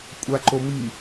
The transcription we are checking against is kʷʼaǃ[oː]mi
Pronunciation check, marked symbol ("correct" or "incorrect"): incorrect